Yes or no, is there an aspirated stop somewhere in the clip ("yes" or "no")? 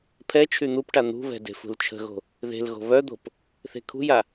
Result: yes